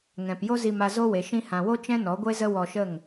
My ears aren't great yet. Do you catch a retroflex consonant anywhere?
no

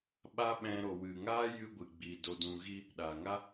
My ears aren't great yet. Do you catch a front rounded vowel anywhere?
no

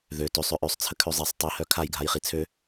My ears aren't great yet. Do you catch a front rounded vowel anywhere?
yes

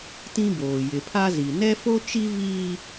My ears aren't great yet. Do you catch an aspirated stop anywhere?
yes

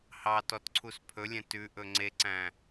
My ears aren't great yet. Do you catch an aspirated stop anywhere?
yes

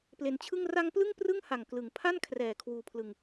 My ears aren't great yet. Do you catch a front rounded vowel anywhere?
no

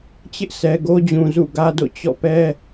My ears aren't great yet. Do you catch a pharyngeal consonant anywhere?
no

